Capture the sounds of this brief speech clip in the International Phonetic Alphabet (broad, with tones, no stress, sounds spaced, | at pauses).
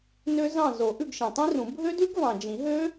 n ø˦˥ z ɑ̃˦˨ z o˨˩˦ ʔ ʉ˦˨ ɡ ʃ ĩ˨ tˤ ĩ˦˥ r ũ˨˩˦ bʱ ø˦˥ d ʉ˦˥ ɡ v ɑ̃˨ d͡ʒ ĩ˨˩˦ ɦ ø˦˥